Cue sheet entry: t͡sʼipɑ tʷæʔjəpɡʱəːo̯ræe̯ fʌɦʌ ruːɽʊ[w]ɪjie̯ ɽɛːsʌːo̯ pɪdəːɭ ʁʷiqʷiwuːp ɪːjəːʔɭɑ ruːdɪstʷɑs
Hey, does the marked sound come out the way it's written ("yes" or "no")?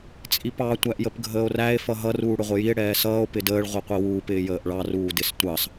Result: no